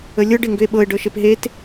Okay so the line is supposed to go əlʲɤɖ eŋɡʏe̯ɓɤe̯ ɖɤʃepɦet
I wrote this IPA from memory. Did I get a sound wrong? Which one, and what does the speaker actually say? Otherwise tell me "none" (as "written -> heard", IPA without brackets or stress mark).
none